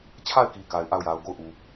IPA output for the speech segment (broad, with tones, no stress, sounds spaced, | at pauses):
t͡ɕʰ a˦˨ ɪ̯ k i˨ k a˨ ɪ̯ ʔ a˦˨ ʊ̯ j a˨ ʊ̯ ɡ o˦˨ ʊ̯ ʔ u˨